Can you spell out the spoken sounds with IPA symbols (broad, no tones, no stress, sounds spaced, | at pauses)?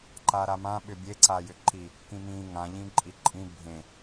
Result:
ǃ a ɾ a m ã ɓ ʏ bʲ e ǀ a j ʏ ǃ i | k ĩ m ĩ ŋ ã ʎ ĩ ǃʼ i ǃʼ ĩ bʱ ẽ